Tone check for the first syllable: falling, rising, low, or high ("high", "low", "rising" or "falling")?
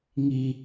low